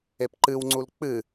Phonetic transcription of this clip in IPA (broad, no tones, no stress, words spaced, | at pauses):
epǃɨwŋ͡ǀul k͡pɨ